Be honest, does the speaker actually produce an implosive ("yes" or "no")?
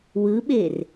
yes